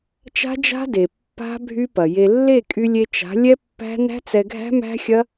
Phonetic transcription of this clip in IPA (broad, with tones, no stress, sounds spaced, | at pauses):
t͡ʃ a̤˦ d͡ʒ a̤˦ d e˨ pː a̤˦ bʱ y˦ p ɐ˨ j e˧ lː e˦˨ kʼ y˧ lʲ e˧ t͡ʃ a̤˨˦ lʲ ɛ˦ pː æ̤˦ n æ̤˦ t͡s ɛ˧ ɡʱ æ̤˦ m æ̤˦ xʲ ɐ˦